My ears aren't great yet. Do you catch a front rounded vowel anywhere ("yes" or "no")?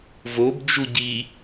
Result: no